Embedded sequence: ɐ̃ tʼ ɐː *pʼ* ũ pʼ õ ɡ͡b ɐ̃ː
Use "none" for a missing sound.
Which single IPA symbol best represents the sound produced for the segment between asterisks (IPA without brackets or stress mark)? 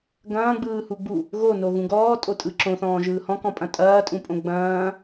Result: tʼ